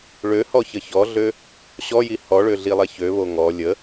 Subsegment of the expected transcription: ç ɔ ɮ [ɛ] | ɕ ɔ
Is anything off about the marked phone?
yes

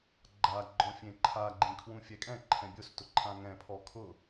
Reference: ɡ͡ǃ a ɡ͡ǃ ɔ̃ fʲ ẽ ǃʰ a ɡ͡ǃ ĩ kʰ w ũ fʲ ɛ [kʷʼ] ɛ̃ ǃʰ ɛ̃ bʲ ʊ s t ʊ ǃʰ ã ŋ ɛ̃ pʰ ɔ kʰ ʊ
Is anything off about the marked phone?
yes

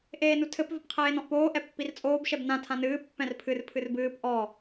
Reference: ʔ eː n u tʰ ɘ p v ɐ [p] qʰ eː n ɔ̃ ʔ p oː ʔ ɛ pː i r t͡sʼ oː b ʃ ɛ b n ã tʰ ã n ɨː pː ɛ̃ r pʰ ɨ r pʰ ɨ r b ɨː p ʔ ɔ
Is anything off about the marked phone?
no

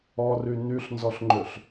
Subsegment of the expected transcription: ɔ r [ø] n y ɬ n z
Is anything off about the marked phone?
yes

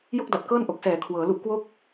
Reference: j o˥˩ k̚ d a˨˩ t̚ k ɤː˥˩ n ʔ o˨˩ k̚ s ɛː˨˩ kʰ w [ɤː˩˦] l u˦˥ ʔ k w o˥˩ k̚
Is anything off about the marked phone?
no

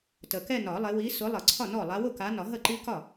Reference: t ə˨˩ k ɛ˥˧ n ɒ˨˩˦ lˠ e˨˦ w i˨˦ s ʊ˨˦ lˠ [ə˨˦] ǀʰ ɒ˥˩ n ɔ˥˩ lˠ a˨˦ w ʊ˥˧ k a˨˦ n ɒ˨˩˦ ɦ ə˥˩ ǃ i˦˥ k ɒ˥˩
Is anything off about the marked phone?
yes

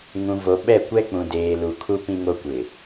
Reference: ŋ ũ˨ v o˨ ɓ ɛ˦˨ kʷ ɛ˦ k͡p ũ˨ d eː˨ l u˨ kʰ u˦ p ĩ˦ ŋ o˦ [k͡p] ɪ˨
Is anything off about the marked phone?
yes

